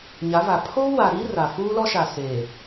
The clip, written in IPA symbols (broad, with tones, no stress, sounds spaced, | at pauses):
ɲ a˨˦ v a˨ pʰ oː˦ w a˨ ɾ iː˦ r a˨ f uː˦ l ɔ˦ ʃ a˨ s eː˨